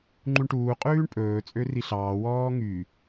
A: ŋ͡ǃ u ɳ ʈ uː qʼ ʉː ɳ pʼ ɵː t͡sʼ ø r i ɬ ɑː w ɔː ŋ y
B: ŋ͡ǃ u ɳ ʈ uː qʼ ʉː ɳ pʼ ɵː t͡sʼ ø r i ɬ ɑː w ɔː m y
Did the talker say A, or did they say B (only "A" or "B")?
A